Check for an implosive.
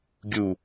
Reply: absent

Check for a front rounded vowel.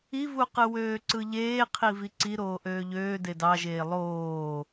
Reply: present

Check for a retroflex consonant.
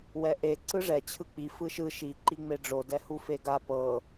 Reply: present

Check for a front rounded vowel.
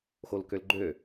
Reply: present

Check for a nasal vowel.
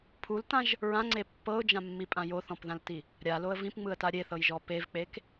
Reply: present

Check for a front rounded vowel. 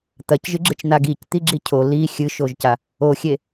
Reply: absent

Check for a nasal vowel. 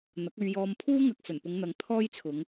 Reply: absent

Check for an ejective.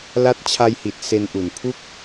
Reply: absent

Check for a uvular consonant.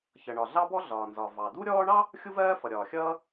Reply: absent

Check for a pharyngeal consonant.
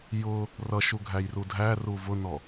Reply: absent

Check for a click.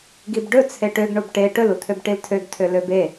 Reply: absent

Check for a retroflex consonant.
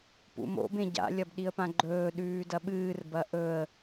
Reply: absent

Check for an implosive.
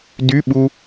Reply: present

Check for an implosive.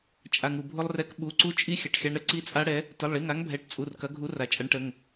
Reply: present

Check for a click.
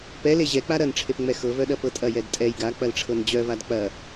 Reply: absent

